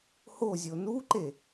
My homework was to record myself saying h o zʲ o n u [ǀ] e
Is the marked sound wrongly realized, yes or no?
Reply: yes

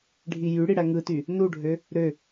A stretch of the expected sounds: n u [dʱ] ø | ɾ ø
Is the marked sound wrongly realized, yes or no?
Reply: yes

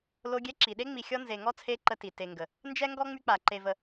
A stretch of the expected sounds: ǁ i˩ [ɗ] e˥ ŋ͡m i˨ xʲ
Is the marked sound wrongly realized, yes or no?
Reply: no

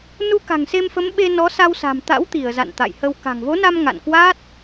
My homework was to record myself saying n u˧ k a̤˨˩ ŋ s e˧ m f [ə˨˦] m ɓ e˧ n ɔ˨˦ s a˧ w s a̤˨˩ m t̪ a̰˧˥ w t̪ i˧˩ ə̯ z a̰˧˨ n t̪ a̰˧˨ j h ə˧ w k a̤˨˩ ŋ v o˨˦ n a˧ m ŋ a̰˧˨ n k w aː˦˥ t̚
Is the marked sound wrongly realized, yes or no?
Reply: no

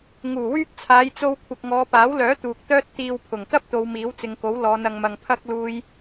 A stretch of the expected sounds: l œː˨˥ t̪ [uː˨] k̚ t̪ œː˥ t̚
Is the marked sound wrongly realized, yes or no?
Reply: no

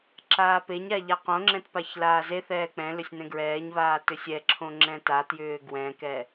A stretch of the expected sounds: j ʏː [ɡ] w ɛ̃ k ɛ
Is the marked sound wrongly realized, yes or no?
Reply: no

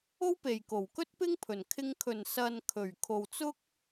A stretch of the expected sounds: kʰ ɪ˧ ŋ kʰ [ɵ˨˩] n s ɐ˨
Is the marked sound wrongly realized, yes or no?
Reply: no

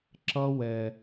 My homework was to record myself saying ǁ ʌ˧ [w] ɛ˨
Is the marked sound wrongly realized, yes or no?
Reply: no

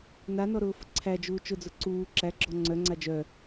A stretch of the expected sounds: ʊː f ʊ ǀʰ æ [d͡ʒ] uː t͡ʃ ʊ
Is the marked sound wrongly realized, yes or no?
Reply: no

